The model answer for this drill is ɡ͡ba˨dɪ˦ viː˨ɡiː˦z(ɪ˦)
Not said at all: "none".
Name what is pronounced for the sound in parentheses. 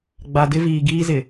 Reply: ɪ˨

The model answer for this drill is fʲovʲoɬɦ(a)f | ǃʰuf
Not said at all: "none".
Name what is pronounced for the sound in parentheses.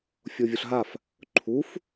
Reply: a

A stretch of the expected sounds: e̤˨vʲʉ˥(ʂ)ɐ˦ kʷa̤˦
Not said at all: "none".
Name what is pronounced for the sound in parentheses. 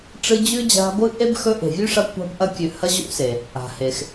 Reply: ʂ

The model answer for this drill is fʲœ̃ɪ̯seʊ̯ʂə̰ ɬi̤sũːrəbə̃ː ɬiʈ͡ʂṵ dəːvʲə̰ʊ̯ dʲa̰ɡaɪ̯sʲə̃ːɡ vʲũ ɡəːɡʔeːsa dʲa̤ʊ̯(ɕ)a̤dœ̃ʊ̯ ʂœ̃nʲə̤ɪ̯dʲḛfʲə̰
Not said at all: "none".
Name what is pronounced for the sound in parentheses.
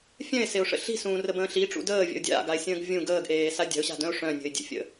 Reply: ɕ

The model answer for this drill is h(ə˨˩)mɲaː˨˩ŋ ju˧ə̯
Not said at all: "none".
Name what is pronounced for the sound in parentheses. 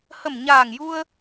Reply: ə˨˩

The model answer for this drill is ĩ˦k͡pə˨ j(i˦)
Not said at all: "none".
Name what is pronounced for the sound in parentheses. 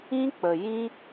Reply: ĩ˦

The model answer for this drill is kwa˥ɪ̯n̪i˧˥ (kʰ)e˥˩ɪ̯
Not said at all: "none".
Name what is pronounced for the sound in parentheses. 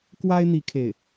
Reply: kʰ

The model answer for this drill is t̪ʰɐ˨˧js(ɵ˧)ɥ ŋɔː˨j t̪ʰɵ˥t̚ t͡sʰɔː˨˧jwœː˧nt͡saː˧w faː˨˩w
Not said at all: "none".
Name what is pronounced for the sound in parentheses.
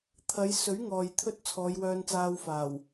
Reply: ɵ˨˥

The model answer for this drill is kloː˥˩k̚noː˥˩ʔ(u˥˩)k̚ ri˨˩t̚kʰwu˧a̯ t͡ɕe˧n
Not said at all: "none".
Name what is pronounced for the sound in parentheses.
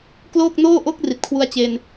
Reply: o˥˩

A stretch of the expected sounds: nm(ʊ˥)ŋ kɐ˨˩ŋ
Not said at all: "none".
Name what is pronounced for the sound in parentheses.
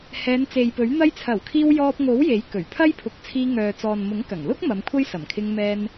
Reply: ʊ˨˥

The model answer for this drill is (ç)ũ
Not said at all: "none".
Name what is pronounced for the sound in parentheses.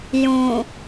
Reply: j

